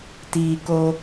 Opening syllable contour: low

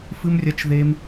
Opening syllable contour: high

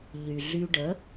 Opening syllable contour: low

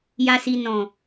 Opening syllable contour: low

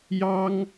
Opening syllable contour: high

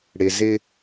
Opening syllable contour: low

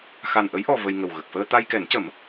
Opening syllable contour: low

